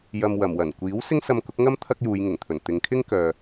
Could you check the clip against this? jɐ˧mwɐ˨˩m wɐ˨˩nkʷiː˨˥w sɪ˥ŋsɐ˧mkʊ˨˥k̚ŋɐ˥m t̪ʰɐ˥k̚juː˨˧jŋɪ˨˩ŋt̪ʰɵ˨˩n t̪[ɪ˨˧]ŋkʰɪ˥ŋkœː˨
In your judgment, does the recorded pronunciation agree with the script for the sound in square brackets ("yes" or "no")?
yes